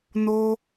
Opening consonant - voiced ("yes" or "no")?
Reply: yes